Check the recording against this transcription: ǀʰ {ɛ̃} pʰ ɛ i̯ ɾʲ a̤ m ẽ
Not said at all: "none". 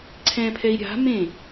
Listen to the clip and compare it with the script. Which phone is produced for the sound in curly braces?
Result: ɛ̃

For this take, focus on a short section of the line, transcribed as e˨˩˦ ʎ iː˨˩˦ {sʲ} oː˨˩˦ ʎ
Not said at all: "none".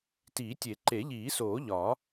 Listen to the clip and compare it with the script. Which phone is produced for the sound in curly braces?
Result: s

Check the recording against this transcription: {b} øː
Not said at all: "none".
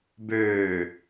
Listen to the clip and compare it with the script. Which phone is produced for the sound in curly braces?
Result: b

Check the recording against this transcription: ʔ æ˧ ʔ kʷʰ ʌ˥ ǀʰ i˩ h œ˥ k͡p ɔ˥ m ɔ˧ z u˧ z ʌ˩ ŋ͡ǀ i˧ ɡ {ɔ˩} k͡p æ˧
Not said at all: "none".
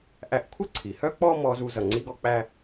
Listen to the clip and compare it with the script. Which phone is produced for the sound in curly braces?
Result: ɔ˧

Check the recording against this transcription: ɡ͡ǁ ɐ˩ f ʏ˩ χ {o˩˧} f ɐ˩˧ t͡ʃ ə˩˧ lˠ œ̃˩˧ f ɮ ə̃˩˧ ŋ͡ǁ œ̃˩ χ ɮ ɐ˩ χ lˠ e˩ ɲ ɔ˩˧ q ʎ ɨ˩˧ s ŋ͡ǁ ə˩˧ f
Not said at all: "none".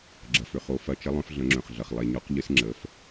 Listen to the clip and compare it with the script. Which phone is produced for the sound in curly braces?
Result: o˩˧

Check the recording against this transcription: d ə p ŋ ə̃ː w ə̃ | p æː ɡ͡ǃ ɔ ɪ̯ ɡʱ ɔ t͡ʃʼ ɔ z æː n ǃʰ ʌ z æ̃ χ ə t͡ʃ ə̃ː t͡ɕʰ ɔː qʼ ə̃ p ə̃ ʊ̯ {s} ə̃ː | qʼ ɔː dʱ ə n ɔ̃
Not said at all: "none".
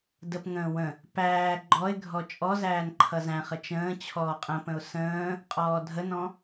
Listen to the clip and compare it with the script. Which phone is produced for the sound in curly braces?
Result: s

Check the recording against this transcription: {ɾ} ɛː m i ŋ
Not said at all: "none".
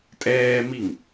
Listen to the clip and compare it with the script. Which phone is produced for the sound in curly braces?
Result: tʼ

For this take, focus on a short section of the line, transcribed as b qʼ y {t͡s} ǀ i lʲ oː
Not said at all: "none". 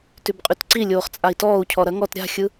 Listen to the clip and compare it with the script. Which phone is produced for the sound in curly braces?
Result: t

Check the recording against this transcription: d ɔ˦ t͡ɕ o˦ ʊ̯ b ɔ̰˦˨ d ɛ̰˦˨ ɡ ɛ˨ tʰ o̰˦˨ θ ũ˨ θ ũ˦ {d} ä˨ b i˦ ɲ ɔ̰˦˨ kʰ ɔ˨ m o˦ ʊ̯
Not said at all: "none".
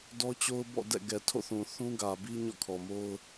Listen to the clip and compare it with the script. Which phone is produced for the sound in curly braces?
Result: ɡ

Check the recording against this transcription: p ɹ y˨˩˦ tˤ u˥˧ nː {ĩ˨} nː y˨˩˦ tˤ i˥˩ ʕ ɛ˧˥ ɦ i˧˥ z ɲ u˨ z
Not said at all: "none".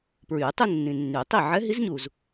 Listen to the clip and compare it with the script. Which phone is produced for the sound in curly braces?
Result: ĩ˨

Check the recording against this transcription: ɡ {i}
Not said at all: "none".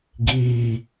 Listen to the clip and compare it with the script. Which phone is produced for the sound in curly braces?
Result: iː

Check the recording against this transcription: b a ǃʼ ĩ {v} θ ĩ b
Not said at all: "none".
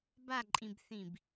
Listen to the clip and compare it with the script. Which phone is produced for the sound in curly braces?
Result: b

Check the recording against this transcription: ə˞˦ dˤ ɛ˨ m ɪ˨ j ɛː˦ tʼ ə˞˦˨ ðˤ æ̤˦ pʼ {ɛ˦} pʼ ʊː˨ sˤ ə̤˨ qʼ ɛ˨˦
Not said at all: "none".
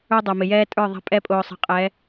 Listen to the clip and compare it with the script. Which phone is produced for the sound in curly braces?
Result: ɛ˦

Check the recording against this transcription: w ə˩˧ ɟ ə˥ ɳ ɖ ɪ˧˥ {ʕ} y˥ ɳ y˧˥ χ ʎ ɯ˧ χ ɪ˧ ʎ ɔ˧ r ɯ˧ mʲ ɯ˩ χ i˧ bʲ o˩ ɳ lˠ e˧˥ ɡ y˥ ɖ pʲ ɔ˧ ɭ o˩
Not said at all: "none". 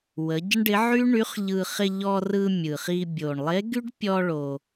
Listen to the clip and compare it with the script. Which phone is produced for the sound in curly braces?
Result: ʕ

